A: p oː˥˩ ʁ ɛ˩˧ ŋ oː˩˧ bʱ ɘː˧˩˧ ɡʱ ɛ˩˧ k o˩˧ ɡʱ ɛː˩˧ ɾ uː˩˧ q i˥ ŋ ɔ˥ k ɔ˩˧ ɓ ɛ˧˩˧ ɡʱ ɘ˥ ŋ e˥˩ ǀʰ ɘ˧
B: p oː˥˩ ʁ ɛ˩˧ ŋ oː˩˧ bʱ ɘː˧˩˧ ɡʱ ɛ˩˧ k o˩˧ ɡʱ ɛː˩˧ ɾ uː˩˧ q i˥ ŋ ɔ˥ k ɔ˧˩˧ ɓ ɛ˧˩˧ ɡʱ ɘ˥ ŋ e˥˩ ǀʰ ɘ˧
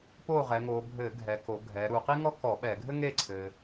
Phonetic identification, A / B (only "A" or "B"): B